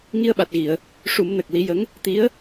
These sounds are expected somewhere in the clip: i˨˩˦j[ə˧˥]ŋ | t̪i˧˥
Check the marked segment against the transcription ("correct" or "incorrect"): correct